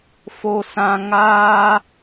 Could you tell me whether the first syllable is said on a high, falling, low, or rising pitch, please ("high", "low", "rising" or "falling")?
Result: high